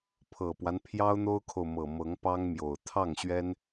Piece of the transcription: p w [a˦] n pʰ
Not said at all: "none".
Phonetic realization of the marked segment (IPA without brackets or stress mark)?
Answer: a˦